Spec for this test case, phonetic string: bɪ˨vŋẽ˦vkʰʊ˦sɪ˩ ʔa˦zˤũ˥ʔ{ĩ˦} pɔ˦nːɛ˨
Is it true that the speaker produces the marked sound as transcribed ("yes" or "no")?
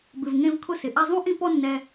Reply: yes